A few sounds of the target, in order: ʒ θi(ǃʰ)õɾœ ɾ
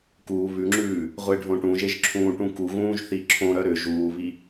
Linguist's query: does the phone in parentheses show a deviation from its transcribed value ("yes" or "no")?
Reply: yes